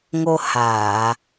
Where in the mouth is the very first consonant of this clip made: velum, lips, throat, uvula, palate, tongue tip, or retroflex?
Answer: velum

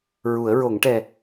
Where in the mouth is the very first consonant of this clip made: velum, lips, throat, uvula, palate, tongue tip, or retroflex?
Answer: tongue tip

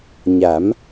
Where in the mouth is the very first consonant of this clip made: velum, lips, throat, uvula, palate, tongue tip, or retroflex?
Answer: palate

